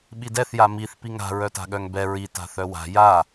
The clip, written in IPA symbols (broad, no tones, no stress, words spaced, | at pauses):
ɓidɛθ jamiθ piŋa̤ ɹœta̤ɠœŋbɛ ɹi ta̤θœwa̤ ja